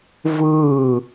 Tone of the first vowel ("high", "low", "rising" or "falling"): falling